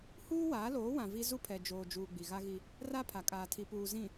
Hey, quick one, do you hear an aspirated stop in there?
yes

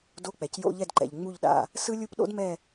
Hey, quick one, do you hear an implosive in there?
yes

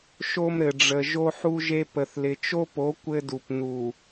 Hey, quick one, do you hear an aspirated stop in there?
no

